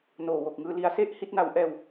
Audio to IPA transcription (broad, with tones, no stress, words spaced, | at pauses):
noː˨˩wo˨˩k̚ŋɯː˧ li˧a̯se˥˩ʔ hi˦˥t̚na˧wʔɛː˧w